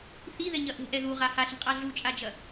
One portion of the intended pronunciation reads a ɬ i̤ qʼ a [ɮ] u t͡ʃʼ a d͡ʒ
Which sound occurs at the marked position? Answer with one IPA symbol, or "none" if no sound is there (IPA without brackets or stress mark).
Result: ɮ